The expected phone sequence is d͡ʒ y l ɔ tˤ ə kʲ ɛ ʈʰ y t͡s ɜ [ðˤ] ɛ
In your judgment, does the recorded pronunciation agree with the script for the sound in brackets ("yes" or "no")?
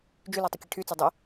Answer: no